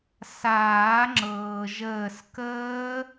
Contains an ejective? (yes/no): no